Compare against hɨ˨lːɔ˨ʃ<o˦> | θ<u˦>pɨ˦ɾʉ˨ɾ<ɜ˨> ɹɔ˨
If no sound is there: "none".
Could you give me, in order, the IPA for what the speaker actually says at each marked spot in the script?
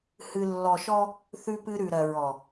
ɔ˦, ʉ˦, ɜ˨

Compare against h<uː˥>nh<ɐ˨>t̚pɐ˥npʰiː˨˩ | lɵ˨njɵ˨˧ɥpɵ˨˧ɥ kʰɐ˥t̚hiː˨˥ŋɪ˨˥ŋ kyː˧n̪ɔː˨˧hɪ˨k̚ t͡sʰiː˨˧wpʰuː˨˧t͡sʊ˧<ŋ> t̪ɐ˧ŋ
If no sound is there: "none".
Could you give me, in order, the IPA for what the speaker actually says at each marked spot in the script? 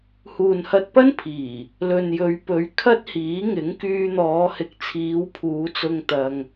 uː˨, ɐ˧, ŋ

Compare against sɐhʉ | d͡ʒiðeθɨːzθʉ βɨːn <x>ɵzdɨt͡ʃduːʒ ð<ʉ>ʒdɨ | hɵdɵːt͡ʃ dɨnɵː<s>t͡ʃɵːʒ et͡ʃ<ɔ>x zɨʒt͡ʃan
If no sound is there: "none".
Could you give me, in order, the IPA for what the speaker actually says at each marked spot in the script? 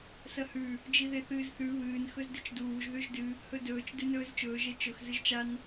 x, ʉ, z, ɵ

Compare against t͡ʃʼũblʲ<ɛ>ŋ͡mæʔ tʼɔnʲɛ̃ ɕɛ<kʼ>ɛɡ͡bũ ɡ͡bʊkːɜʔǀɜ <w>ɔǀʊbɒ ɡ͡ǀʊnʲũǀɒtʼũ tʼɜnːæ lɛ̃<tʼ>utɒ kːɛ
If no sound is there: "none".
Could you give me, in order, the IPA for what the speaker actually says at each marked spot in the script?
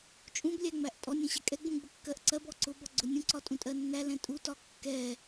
æ, kʼ, b, tʼ

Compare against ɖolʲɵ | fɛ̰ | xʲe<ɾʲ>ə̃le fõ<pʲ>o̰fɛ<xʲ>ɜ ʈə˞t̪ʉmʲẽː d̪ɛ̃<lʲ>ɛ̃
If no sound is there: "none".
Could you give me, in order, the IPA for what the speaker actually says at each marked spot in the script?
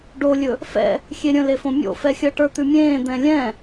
ɾʲ, mʲ, xʲ, lʲ

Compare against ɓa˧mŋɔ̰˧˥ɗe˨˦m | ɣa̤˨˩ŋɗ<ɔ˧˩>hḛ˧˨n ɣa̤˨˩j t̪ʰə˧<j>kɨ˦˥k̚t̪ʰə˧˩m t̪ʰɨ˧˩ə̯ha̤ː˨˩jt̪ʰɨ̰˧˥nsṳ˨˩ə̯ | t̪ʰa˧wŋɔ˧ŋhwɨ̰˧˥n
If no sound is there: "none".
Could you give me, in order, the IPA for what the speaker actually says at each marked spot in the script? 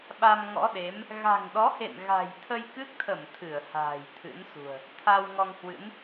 ɔ˨˦, j

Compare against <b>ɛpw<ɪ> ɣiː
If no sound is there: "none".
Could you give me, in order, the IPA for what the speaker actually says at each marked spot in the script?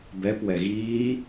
b, ɛ

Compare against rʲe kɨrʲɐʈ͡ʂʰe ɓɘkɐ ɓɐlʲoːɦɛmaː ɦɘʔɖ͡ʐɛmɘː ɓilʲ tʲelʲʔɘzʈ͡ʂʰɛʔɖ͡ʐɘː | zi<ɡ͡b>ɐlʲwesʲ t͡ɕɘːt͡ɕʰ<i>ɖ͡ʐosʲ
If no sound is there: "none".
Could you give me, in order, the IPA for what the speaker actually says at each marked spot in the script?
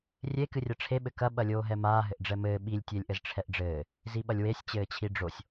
ɓ, i

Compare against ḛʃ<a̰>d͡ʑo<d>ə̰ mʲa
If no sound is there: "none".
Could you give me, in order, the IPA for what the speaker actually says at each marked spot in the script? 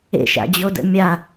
a̰, d

